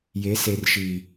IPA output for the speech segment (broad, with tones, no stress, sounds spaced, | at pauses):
j e˨˦ s e˨ r ʃ iː˨